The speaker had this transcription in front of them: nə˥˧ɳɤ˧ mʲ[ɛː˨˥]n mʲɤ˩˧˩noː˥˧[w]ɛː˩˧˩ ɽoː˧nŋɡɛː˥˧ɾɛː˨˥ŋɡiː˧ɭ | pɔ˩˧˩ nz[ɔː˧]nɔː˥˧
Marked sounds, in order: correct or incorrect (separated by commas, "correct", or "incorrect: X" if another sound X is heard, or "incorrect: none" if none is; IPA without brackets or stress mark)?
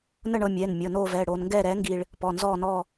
incorrect: ɛː˩˧˩, incorrect: v, incorrect: ɔː˥˧